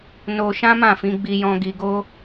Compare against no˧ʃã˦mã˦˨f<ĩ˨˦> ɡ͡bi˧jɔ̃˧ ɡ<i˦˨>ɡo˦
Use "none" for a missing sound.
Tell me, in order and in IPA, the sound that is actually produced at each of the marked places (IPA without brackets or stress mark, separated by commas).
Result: ĩ˨˦, i˧